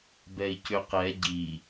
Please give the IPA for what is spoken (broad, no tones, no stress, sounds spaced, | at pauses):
b ɛ i̯ c ʏ q ɛ ɟ i